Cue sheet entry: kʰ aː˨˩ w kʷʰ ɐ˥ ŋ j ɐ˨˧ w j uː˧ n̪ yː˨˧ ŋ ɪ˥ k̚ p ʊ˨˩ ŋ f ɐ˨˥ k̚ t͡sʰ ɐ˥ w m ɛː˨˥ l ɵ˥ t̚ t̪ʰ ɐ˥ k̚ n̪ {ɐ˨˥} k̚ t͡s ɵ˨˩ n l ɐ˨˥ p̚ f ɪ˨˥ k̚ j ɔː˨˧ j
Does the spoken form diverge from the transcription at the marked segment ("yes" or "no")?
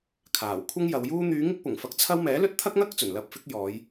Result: yes